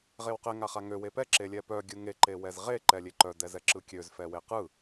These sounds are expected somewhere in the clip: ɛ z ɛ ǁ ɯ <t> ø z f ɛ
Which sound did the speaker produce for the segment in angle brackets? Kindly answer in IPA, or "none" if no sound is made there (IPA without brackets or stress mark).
kʲ